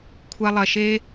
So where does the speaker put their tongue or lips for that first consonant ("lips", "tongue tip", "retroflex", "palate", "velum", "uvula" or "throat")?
velum